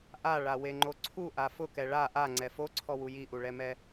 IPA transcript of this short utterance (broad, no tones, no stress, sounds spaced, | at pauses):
ʔ a ɭ a w e ŋ͡ǃ o ǀʰ u ʔ a f ʊ k ɛ ɭ a ʔ a ŋ͡ǀ ɛ f o ǀʰ ɔ w u j i ʔ u ɭ ɛ m ɛ